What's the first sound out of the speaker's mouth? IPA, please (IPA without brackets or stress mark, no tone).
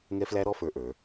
ŋ